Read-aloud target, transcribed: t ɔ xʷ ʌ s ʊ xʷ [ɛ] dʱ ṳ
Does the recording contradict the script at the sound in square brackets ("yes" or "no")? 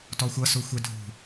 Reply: no